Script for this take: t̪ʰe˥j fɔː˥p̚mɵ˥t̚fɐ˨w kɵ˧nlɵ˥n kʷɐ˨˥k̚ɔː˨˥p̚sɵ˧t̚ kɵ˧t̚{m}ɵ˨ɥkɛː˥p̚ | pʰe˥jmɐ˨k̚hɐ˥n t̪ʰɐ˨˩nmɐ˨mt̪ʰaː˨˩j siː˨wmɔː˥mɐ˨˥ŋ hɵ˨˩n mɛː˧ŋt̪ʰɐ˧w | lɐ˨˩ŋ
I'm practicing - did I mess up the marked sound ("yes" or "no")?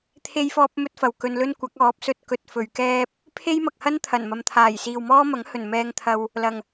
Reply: yes